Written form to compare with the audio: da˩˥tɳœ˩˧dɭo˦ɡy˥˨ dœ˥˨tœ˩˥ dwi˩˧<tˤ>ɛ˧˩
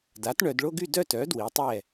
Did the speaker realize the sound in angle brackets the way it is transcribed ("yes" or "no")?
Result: yes